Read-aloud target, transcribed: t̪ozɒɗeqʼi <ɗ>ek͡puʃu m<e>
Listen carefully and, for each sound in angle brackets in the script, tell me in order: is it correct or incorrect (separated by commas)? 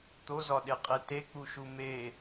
incorrect, correct